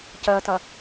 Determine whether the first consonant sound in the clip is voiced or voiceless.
voiceless